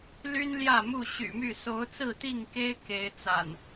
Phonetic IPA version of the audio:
l y˦ n l j ä˥˨ m u˥˨ ɕ y̰˨˩ m y˥˨ s o˨˦ ʊ̯ t͡s ɹ̩˥˨ t̪ i˥˨ ŋ k e˦ ɪ̯ k e˨˦ ɪ̯ t͡s a̰˨˩ n

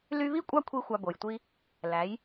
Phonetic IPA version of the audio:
l y˧ β i˥˩ kʷʼ ɑ˥˩ kʷʰ i˥ xʷ ɑ˧ b o˩ j tʷ i˥ | l æ˩˥ j

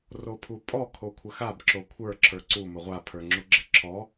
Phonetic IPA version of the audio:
r o pʰ u pʼ ɔ kʰ o kʷʰ ə x a b ǁ o kʷʰ ə˞ ǁʰ ə˞ ǀ u m ə ʁʷ a pʰ ə˞ ŋ͡ǁ u ɡ͡ǁ ə ǁʰ ɔ

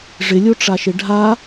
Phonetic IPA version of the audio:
ʐ ɪ lʲ o ʈ͡ʂ a ʃ ɪ ɖʱ a

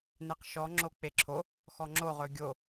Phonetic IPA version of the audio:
n e q ʃ ɔ ŋ͡ǁ o k͡p e ǁʰ o | x ɔ ŋ͡ǁ o ʁ ɵ ɡʲ o

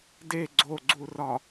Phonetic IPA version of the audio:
d e ɡ͡ǀ o ɡ͡ǀ u r ɒ

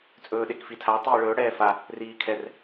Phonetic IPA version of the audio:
t͡sʼ ɵː ɗ e k f i tʰ a tˤ iː ɭ ɵː ɽ ɛː f a | r iː kʰ ɛ r

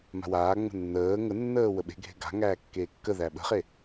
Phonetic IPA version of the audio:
m a̤ w aː ŋ͡m ə̤ nː əː ŋ ə nː əː w ə ɓ e̤ ɡʱ e̤ ɡ a̤ ŋ æː kː eː kː ə ð æ ɓ ə̤ χ e

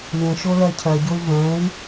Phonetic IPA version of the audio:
lʲ ə̃ ʃ o l ɜ cʰ ɜ ɟ o y̯ v ɛ̃ y̯

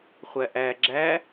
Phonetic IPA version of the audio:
χʷ æ ʔ æ ɡ͡ǁ æ

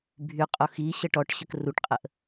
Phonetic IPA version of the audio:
bʱ y qʼ o x i ɕ ə ʈ ɔ ʈ ɕ ə k r u ʈ qʼ ə ʔ

